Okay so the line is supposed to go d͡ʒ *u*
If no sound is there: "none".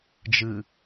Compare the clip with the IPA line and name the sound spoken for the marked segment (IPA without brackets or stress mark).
ɯ